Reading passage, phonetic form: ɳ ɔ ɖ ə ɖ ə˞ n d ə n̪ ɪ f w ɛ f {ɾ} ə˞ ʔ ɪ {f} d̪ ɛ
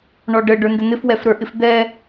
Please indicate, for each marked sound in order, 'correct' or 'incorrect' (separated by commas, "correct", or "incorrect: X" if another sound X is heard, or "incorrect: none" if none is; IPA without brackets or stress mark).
correct, correct